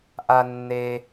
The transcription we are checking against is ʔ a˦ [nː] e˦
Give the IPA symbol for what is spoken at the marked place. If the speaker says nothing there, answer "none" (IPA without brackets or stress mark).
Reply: nː